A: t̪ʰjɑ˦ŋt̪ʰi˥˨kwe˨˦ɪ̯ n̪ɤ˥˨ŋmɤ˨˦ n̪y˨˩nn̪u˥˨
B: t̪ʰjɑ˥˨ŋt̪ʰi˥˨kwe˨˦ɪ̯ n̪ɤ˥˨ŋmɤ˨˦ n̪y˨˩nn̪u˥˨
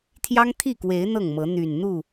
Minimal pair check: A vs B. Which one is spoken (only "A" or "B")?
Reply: A